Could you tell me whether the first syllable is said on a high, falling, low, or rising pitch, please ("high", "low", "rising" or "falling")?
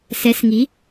rising